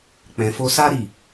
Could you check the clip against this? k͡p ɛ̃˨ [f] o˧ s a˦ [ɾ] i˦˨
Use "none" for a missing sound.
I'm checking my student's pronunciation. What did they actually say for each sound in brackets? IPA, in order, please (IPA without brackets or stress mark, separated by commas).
f, ɾ